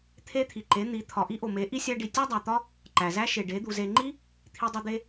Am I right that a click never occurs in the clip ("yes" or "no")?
no